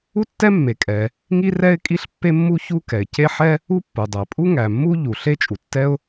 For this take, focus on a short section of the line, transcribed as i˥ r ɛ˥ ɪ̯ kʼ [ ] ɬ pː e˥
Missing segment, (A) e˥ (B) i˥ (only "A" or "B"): B